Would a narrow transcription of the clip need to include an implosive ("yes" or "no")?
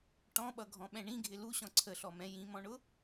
yes